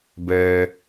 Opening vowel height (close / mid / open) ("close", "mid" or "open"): mid